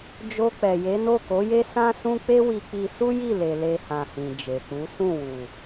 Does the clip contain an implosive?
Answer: no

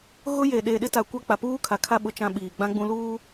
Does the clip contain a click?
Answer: no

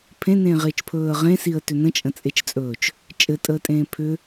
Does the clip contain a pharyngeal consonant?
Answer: no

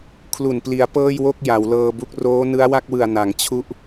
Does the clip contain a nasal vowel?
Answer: no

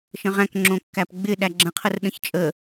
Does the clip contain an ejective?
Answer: yes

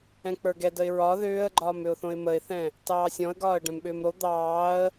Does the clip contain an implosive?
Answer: yes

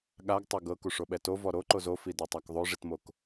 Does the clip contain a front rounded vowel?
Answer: no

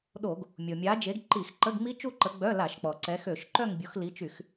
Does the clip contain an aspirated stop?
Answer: no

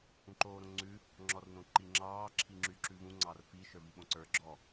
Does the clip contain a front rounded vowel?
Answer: yes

